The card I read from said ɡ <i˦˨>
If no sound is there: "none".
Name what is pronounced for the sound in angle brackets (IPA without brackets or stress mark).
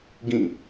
ĩ˦˨